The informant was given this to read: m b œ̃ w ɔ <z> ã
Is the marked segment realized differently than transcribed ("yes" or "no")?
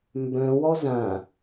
no